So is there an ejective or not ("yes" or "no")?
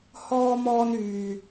no